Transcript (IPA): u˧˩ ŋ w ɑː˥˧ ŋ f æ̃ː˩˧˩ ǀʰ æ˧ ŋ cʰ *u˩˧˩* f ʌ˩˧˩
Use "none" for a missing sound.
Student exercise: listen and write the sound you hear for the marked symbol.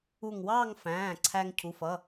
u˩˧˩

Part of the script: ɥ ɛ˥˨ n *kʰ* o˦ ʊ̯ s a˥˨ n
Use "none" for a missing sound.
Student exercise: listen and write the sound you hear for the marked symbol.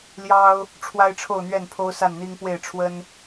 pʰ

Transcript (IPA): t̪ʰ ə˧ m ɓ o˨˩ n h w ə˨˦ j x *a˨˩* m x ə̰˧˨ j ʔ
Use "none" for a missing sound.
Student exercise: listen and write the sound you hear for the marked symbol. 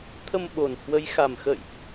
a˨˩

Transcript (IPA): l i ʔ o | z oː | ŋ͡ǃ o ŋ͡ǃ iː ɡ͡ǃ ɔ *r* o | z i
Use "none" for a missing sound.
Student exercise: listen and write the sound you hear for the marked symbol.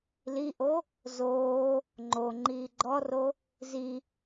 r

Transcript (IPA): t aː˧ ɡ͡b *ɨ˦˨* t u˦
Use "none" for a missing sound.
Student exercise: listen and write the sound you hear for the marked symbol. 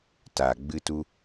ɨ˦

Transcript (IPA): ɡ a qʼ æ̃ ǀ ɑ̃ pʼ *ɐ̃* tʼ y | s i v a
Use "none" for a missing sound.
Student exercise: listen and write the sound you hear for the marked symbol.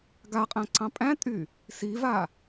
æ̃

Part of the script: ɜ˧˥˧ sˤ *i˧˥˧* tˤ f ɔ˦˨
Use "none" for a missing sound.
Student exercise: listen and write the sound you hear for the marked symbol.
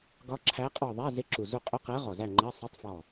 i˧˥˧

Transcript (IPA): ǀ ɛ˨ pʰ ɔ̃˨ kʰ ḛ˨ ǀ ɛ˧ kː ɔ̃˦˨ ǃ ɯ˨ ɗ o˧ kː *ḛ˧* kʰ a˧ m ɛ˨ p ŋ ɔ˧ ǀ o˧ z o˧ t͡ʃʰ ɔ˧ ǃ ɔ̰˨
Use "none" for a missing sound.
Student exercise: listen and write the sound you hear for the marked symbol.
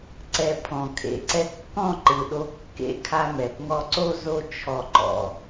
ḛ˧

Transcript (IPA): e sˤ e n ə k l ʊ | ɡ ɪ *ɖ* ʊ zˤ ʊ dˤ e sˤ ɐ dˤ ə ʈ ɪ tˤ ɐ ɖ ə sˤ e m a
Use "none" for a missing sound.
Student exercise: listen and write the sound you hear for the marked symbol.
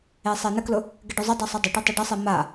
ɖ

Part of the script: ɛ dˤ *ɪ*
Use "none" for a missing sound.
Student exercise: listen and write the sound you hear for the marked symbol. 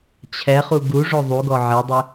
ɪ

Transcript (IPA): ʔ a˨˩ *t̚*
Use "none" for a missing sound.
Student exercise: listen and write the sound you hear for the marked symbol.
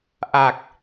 k̚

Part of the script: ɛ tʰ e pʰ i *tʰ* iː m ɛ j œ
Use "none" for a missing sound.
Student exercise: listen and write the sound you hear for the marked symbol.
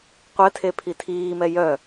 tʰ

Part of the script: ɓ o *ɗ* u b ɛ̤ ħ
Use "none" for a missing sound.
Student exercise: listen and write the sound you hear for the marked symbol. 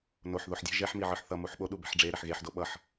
ɗ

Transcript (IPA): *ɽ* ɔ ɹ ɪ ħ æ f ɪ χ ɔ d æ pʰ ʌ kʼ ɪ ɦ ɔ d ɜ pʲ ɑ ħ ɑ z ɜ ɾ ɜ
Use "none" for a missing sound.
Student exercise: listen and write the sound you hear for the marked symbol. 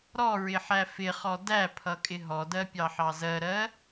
ɾ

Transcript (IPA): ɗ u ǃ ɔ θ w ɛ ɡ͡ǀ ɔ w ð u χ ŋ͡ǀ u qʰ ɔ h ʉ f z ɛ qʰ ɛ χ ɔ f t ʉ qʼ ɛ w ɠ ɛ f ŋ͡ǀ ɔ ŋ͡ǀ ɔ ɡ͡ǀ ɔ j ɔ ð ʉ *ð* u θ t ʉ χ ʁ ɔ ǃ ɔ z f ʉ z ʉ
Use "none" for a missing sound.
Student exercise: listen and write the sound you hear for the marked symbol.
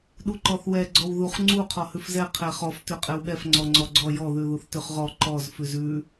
ð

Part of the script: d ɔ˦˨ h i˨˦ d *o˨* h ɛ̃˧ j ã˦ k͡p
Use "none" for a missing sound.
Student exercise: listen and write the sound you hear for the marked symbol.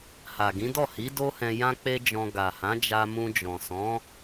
o˦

